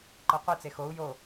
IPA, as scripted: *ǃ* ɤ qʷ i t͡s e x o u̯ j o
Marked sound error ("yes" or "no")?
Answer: no